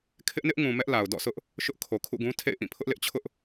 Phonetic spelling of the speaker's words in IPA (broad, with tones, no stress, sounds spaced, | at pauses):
kʰ ɪ˦ ʔ n ɪ˦ ʔ ŋ ũ˨ m ɛ˦ ʔ l a˨ ʊ̯ d ɔ̰˦˨ sʰ ʊ˦ ʔ | ʃ ʊ˦ ʔ kʰ o˨ kʰ ṵ˦˨ ɡ ũ˦ tʰ ḛ˦˨ ɪ̯ ʔ ĩ˦˨ pʰ ʊ˦ ʔ l ɪ˦ ʔ t͡ɕʰ ʊ˦ ʔ